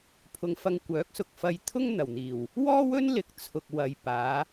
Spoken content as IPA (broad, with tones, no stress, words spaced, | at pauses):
pʰʊ˨ŋfɐ˧ŋ kʷœː˨˥k̚sʊ˨k̚fɐ˧jt̪ʰʊ˥ŋ n̪ɐ˨˩wn̪iː˨˩w | wɔː˥wɵ˥nlɪ˨k̚ t͡sʰʊ˨k̚wɐ˨jpaː˨˧